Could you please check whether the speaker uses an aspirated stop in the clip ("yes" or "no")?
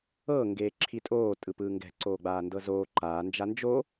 yes